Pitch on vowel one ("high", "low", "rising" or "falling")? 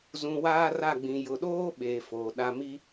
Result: low